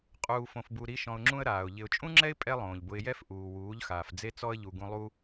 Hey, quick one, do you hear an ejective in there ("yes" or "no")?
yes